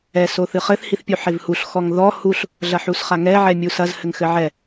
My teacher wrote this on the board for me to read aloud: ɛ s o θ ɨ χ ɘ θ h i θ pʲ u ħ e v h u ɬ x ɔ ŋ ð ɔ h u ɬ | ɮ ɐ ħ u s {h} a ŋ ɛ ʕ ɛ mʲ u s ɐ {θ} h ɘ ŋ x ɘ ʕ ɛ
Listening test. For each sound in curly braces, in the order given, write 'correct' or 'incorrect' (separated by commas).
incorrect, incorrect